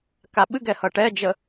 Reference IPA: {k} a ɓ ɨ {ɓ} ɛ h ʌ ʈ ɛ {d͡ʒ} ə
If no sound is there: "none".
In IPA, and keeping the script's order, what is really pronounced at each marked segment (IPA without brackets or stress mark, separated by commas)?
k, ɡ, d͡ʒ